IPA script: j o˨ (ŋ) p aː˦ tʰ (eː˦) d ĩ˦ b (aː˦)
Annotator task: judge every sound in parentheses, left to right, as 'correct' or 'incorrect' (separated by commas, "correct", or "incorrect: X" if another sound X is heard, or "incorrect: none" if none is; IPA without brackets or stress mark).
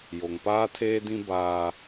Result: correct, correct, correct